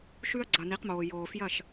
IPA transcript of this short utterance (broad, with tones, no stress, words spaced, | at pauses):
ʃʉ˦ɐ̯ ɡ͡ǀɐ˨ni˨˦qmoː˨ joː˨fjɐ˦˨ʃ